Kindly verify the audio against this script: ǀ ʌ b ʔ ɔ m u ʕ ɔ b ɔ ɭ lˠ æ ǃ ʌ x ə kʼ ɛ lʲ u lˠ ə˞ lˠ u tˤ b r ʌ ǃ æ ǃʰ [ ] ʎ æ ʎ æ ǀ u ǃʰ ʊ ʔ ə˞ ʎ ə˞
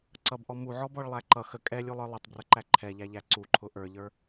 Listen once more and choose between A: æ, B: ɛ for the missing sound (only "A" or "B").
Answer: B